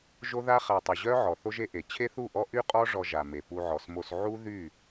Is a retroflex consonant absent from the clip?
no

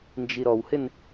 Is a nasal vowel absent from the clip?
yes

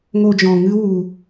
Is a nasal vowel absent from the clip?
no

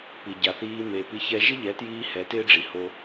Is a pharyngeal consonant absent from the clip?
yes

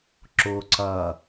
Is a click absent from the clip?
no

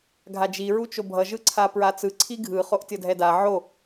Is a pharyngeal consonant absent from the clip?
no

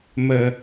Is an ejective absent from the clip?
yes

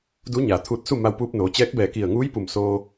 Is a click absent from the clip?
yes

